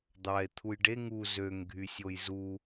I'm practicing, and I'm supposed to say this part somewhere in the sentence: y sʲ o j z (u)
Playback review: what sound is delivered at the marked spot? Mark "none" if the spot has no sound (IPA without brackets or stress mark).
u